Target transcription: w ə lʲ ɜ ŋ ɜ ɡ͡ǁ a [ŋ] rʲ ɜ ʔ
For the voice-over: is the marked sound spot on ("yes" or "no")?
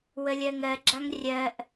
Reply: yes